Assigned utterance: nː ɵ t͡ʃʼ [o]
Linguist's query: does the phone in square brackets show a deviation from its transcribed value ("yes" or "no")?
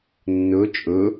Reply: yes